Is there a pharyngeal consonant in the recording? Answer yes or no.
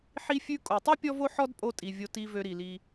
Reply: yes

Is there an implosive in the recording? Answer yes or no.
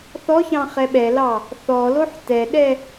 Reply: yes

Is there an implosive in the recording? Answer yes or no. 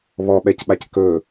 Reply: yes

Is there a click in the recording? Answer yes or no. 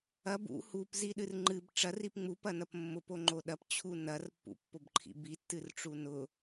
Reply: yes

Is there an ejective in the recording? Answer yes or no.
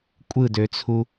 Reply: yes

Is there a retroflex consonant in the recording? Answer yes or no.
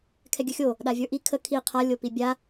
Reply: no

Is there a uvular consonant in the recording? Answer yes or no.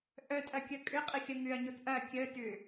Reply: yes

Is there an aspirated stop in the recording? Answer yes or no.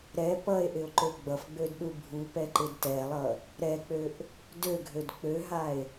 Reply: no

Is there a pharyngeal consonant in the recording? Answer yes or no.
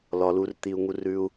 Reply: no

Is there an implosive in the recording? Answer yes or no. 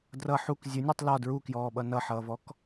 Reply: yes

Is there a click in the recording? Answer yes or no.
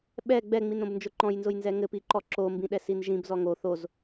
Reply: yes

